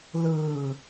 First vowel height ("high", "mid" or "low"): high